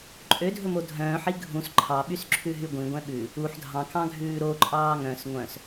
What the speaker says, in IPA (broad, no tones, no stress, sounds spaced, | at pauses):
ǃʼ ø dʱ ɵ m o dʱ œ̃ː ħ i ɡʱ ũ s ǃʰ ɑ ɓ y s ǁʰ ʉ ɦ y ɡʷ ĩ ɡʷ ɛ̃ ɓ ʉ | u ħ dʱ ɑ̃ k ɑ̃ ɡʱ ʉː ɾ o ǃʼ ɑː ŋ œ̃ s ŋʷ œ̃ s